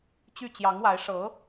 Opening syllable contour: falling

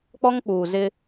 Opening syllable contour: high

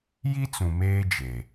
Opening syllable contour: high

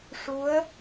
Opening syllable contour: rising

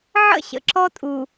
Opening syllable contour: falling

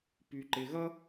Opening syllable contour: low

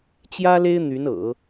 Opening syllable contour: high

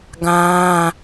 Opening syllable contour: high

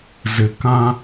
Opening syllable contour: low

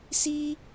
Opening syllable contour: high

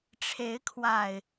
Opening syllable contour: rising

